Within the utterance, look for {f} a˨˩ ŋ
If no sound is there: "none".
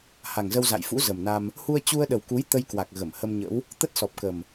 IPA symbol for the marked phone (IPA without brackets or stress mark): h